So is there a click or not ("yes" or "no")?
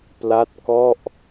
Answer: no